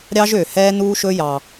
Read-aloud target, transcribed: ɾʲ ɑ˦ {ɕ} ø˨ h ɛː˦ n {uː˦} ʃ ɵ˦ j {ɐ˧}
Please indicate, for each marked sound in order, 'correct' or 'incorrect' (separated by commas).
incorrect, correct, incorrect